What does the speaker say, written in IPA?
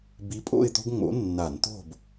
b i˨˥ pʼ o̰˥˨ ɪ̯ t̪ o̤˦ ɡ ŋ͡m o̰˨˥ nː a˧˩˧ n t̪ o̤˧˩ b

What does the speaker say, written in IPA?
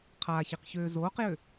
qʰ aː ç i q ç øː z oː q j ø

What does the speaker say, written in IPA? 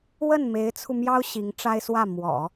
w ə˥˩ n m e˧˥ ɪ̯ t͡sʰ u˧ m j ɑ˥ ʊ̯ ɕ i˧˥ ŋ ʈ͡ʂ a˥ ɪ̯ s w ä˥˩ m w ɔ̰˨˩˦

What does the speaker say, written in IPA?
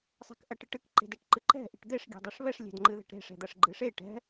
sˤ e̤ k ʔ ɐ ʈ ɨ ʈ ɨ k ǃ e̤ d ɛ ʈ ǃ ɨ ǃ ɛ̤ ʔ i̤ ʈ d̪ e ʂ ɡʲ e̤ dˤ i ʂ β ɛ ʂ lʲ e̤ d ŋ͡ǃ ɨ ð ɛ̤ ʈ ɾ e̤ ʂ ɛ̤ d̪ ɐ ʂ ɡ͡ǃ ɨ ʂ e ʈ ɛ̤

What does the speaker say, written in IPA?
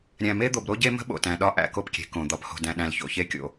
ɾʲ æ̃˨ m e˦ d̪ o˨ b ɾ o˦ ɟ e˦ m ə̤˦ ɓ o̰˨ t æ̃˨ ɗ ɒ˦ ʔ æ̰˨ k o˦ p kʲ e̤˨ k õ˨ d̪ ɒ˨ p h o̤˨ d æ̃˨ ɗ æ̃˨ l ç o̰˨ ç e˦ kʲ o̰˨

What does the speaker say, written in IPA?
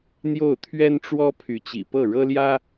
n̪ j o˥˩ ʊ̯ t̪ʰ ɥ ɛ˥ n ʈ͡ʂ w ɔ˥ pʰ y˧˥ t͡ɕ ḭ˨˩ p ɤ˥˩ ɻ ɤ˥ l j ä˥

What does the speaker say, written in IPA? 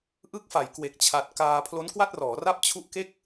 ʔ ɯ˦˥ k̚ f a˩˦ j k w e˨˩ k̚ t͡ɕʰ a˨˩ t̚ k aː˧ pʰ l o˦˥ n k w a˥˩ t̚ r ɔː˩˦ r a˥˩ p̚ t͡ɕʰ u˦˥ ʔ k e˥˩ k̚

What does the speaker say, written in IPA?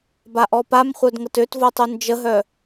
b a ʔ ɔ p a m χʷ œ d ŋ ə t ø t v o tˤ u n d͡ʒ ə ɦ œ

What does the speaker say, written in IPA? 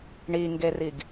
ɳ i ŋ ɡ e r i ɡ

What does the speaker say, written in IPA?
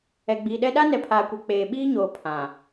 ɛ˨ ɡ͡b iː˨ ɗ ɛ˦ ɗ a˦ n ɛ˨ pʰ aː˨ kʷ ɛ˨ k͡p eː˨ ɓ iː˦ ɲ oː˨ pʰ ã˨

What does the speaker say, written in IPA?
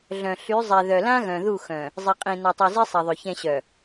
ɮ œ̃˨ ɬ y˨˦ zˤ ɛ˨ ð œ˨ l ã˦ ɣ œ̃˨ ð u˦˨ x œ̃˨ | zˤ i˨ qʼ ĩ˨ n a˨ tˤ y˨ z i˦ sˤ ɛ˨ ðˤ ø˨ ç ɛ̃˨ ɕ œ˨

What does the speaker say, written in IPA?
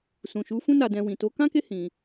s ũ˨ ʃ u˨˦ f ũ˧ n a˨ d ɛ̃˨ w ĩ˨ t o˨˦ k ã˦ k e˦ h ĩ˧

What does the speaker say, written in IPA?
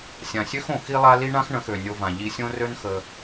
sʲ ã˨ sʲ ø˦ x õ˨ x i˧ lˠ a˧ l i˦ ɳ ã˦ x ɳ ə̃˨˦ x ø˨ nʲ o˧ v ã˨ ʎ i˧ sʲ õ˦ r ø˦ n x ə˧

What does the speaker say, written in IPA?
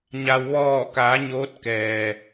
ɲ a˩ w ʋ ɔː˧˩ k a˩˧ ɲ oː˧˥ t̚ k ɛː˩

